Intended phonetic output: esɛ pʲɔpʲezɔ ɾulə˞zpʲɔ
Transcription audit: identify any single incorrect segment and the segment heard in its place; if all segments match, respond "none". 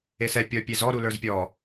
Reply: none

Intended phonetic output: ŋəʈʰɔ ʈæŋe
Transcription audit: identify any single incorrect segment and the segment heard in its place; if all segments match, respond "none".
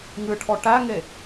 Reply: ə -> ɨ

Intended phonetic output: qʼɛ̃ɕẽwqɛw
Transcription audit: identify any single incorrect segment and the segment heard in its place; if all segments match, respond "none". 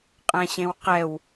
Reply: none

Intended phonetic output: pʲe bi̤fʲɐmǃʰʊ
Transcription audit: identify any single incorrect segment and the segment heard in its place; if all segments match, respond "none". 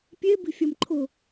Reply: none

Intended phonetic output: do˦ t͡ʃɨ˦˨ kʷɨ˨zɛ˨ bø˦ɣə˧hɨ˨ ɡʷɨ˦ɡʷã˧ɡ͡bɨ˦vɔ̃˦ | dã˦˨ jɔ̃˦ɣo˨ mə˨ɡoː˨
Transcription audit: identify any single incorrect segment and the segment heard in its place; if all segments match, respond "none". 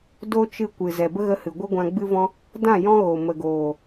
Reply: ø˦ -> ə˦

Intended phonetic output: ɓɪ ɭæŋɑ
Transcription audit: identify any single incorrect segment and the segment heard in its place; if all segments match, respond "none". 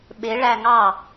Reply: none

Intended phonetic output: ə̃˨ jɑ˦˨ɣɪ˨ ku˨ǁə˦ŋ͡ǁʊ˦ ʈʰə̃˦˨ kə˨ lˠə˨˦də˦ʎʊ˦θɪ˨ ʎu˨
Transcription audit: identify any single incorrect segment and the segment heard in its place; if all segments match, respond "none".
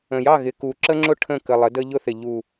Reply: none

